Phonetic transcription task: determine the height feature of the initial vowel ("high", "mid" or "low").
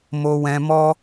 mid